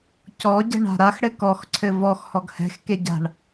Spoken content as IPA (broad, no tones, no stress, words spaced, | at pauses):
cɔ ɟɛ̤ɳa̤ɾax ɽɘkɔx ǀʰɘvɔx hɔɡhɛ̤x keɟa̤ɳ